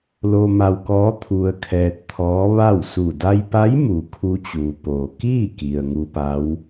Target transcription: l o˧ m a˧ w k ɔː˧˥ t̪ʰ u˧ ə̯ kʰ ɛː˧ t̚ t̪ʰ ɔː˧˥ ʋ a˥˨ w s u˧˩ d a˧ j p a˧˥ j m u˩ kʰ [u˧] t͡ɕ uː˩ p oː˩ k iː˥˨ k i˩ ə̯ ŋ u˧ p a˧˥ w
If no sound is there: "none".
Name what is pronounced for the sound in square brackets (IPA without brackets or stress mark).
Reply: u˧